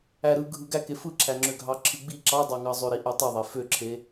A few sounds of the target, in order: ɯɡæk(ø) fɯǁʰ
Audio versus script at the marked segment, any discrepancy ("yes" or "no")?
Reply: yes